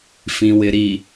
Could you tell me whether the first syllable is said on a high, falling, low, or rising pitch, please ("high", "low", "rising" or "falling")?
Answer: low